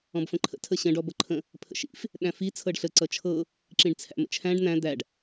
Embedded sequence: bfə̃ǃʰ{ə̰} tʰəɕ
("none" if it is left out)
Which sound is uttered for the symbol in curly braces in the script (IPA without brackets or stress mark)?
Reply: ə̰